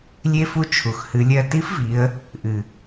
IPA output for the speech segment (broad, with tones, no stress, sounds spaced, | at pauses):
lʲ e˧ f u˧ t͡ʃʰ u˩ x h ɨ˩˧ lʲ ɜ˧ t i˧˥ f v i˩˧ ə̯ | ʔ ɨ˩